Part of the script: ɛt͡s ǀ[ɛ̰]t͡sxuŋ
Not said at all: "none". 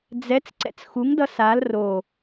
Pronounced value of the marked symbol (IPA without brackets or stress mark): ɛ̰